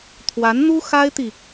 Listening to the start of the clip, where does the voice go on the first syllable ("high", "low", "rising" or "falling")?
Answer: rising